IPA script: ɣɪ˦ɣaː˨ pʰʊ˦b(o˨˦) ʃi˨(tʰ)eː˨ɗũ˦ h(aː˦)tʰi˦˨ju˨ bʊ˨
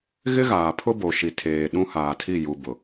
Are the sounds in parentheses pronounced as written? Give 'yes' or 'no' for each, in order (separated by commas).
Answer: no, yes, no